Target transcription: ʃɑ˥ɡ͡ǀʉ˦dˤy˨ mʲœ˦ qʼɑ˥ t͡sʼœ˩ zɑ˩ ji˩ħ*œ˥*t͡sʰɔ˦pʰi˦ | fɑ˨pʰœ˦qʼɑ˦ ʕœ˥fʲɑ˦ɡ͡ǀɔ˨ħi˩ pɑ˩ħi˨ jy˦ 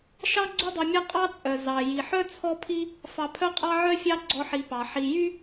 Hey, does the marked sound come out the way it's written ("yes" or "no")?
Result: yes